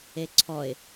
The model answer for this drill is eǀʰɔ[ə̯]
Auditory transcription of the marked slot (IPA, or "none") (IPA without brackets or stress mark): ɪ̯